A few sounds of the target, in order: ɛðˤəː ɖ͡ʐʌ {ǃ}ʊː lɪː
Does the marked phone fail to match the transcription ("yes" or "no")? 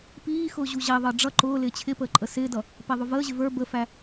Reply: no